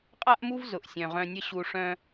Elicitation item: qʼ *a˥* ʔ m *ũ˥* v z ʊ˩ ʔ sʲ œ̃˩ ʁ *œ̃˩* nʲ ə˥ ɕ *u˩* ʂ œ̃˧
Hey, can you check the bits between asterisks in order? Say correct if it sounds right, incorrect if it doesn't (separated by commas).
correct, incorrect, incorrect, incorrect